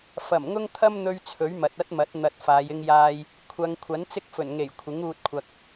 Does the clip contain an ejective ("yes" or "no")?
no